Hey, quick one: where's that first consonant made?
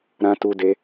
tongue tip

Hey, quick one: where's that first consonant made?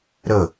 tongue tip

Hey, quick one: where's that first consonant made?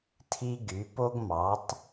tongue tip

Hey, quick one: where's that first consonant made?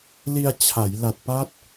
tongue tip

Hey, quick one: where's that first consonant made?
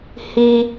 throat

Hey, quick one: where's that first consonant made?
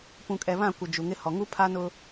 lips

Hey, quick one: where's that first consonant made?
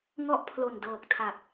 velum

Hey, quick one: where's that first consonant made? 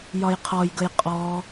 palate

